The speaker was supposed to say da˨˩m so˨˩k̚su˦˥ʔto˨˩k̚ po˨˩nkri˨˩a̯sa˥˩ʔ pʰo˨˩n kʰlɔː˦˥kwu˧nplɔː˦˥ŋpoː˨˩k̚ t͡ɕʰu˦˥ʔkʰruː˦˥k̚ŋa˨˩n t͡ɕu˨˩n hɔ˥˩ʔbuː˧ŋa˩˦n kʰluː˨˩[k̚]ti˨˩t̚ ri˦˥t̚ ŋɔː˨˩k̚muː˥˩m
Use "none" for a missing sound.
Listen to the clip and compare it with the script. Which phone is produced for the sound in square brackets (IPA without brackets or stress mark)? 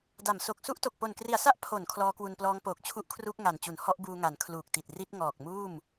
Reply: k̚